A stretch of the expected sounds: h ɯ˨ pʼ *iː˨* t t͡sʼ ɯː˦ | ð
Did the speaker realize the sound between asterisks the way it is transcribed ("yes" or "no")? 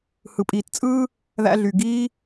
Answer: yes